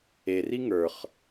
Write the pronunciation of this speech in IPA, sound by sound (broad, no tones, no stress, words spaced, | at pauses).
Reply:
eri ŋə˞χ